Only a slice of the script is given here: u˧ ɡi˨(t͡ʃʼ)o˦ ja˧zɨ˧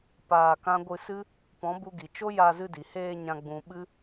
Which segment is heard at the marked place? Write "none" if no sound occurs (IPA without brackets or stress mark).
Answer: t͡ʃ